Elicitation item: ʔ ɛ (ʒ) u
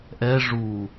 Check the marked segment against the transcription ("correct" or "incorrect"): incorrect